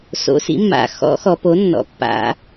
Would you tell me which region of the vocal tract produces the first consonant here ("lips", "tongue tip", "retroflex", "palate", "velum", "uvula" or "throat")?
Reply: tongue tip